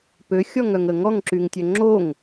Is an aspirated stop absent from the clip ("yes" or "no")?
yes